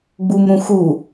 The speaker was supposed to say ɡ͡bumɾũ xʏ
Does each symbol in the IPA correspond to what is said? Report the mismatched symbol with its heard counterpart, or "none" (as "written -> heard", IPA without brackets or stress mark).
ʏ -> u